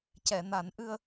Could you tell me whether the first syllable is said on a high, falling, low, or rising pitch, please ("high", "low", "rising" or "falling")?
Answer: low